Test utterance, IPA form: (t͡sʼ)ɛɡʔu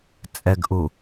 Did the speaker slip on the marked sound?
no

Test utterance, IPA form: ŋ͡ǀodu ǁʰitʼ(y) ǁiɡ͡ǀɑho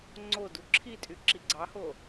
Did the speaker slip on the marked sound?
no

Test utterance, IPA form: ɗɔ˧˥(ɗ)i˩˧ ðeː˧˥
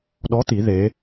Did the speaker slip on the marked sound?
yes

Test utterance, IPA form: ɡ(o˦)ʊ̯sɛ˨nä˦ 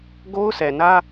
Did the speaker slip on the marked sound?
no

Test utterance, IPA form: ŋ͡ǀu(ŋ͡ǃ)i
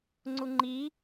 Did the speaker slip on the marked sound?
no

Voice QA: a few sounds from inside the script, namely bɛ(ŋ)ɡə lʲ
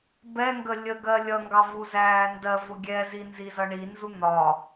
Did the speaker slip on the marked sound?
no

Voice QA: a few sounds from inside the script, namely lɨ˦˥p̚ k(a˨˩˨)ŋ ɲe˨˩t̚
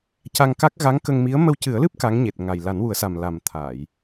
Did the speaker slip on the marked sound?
yes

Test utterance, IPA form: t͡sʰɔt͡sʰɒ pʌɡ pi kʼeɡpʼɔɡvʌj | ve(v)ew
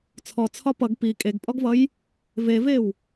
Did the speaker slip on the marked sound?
no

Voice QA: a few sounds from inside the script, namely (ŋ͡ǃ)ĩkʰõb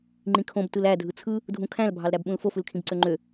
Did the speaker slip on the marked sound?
no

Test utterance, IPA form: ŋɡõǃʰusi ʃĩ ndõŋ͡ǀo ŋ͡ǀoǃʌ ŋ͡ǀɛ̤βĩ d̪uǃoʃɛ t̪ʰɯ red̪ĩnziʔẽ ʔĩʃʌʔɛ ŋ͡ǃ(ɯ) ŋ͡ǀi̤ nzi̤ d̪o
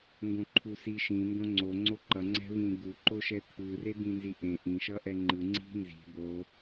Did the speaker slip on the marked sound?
no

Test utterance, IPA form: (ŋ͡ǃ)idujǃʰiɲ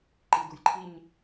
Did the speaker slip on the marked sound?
yes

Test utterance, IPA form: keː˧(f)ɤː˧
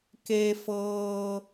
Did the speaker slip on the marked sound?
no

